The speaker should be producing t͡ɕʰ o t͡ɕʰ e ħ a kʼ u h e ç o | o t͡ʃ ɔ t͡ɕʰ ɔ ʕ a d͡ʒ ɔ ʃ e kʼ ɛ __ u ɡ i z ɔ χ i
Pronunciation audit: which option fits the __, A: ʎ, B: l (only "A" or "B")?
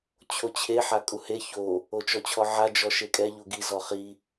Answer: A